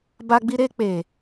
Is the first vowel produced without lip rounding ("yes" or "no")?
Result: yes